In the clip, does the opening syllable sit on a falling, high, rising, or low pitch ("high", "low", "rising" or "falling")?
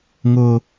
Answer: low